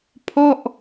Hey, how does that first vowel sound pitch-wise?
falling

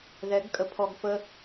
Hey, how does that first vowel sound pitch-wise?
rising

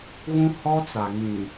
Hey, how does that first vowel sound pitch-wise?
high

